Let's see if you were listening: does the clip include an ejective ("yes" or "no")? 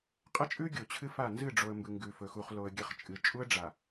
yes